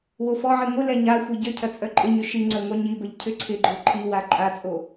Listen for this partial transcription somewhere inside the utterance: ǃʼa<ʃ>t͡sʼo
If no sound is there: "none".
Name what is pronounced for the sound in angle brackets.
none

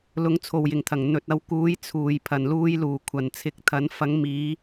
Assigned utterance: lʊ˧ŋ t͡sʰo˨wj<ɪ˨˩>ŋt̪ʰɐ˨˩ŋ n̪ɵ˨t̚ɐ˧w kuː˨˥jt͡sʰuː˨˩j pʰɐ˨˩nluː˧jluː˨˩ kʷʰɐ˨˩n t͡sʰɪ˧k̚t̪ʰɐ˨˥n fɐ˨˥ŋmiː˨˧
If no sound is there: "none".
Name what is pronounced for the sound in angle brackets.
ɪ˨˩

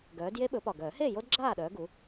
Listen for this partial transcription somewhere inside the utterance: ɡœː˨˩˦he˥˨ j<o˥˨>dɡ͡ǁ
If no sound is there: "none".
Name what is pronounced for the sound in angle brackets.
o˦˥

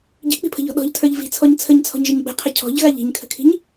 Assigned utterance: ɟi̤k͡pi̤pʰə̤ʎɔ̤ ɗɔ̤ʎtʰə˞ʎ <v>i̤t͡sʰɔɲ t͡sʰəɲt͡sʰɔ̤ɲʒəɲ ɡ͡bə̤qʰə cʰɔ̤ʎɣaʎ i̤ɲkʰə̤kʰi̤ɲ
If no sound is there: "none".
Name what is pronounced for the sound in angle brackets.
v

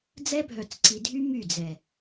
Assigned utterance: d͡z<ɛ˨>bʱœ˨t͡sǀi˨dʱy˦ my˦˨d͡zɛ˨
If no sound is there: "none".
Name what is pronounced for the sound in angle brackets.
ɛ˦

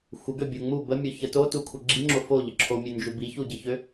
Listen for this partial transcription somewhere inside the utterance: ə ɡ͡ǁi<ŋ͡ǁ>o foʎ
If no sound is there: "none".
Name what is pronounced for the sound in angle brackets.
ŋ͡ǁ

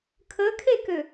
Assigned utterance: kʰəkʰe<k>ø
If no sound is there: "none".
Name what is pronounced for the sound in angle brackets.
k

